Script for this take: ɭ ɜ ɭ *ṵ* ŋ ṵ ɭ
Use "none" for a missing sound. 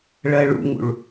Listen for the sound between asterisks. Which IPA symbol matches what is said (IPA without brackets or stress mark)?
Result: ṵ